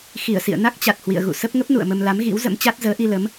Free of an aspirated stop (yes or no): yes